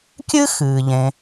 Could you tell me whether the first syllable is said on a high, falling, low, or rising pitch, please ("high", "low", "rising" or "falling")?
high